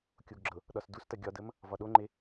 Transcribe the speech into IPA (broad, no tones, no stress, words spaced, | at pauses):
kʲoɡɡ͡ǁɤ | ɗɒsdustɐ ɡʲɒdəm | vɒɗoŋ͡ǃe